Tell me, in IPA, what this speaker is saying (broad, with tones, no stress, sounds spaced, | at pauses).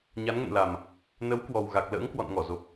ɲ a˨˦ n ŋ ə̰˧˨ n l a˨˩ m | n ə˨˦ w k w ɔ˨˩ w ɣ a˨˩ k̚ l ə̰ː˧˥ ŋ k w ɔ̰˧˨ n ŋ ɔ˧˩ z o˨˩ p̚